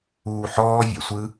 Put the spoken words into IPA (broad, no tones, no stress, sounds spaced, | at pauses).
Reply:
uː ħ ɔː vʲ ɛ̰ sʷ ɯ